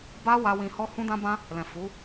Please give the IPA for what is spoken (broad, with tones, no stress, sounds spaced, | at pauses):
b a˦ w a˦ w ĩ˧ h ɔ˦ h ũ˦ d ã˦ b ã˦ | l ɛ̃˨ f u˨˦